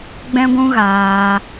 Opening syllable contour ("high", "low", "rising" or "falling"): high